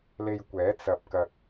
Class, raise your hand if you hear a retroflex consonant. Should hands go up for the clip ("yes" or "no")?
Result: no